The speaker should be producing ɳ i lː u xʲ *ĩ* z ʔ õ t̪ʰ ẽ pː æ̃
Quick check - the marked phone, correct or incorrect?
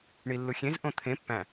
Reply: incorrect